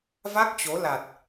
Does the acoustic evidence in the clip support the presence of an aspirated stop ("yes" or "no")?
no